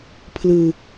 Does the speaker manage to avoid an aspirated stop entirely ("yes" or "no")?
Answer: no